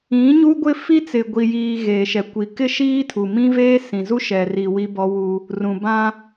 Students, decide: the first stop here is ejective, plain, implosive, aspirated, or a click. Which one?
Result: plain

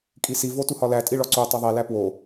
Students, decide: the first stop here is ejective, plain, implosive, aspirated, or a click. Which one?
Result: ejective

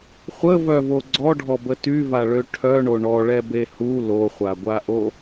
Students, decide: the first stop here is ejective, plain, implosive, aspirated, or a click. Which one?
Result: click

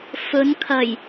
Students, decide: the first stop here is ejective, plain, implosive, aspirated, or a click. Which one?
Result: aspirated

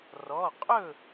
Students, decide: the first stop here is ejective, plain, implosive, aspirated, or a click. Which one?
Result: ejective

